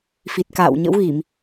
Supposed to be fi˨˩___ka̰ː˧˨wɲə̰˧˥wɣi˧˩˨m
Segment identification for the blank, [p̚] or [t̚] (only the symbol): t̚